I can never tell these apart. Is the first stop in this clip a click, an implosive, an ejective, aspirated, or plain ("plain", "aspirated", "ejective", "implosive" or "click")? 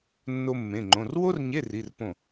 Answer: click